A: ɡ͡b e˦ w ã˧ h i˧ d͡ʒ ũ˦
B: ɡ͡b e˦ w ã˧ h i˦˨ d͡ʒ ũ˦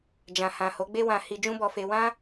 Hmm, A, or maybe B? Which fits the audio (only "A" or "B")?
A